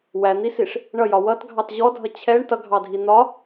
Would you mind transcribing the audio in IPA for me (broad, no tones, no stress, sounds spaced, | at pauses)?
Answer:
w æ n̪ i s i ʂ | ɳ ʌ j ɒ w ʌ t ɡʱ ɑ t ʑ ɔ dʱ ʌ t͡ɕʰ ɛ ɳ t ʌ ɡʱ ɑ dʱ i n̪ ɒ